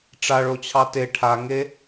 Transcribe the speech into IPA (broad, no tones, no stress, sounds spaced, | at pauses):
ʈ͡ʂ a ɭ o t͡ɕʰ ɑ t e ʈʰ a ŋ e